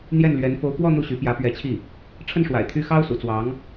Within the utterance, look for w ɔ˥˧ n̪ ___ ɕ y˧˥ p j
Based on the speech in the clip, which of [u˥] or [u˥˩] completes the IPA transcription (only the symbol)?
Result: u˥˩